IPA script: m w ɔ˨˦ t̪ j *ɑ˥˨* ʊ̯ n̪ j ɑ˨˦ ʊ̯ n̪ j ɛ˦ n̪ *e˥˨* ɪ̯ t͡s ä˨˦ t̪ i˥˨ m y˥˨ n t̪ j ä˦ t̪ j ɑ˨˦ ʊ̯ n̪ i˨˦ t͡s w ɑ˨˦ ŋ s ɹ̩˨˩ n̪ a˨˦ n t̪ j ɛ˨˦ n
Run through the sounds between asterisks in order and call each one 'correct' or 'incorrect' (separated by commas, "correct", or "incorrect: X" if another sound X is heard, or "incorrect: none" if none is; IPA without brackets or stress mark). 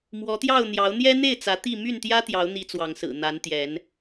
correct, correct